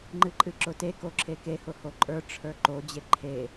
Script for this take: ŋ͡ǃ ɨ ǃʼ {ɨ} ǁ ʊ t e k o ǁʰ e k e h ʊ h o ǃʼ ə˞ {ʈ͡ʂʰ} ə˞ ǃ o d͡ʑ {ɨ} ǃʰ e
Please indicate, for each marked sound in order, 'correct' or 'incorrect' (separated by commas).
correct, correct, incorrect